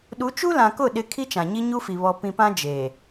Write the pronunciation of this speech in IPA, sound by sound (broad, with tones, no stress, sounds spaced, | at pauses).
ɗ u˨˦ t͡ʃ u˦ l ã˨ k ʊ˦˨ ɗ ɪ˦ kʰ i˦ t͡ʃ ã˨ ɲ i˦ ɲ u˦ f i˨ β ɔ˨ p ĩ˨ p ã˦ d͡ʒ eː˨